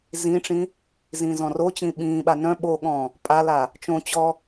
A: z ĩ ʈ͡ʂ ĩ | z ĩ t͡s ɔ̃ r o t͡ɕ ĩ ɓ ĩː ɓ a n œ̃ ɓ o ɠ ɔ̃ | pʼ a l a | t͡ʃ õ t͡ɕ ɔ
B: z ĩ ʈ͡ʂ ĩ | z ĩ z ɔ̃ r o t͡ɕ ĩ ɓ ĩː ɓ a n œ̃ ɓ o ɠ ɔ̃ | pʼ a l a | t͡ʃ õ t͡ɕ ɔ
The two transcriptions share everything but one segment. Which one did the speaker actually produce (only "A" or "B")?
B